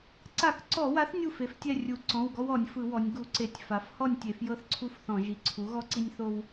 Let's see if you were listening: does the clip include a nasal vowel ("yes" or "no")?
yes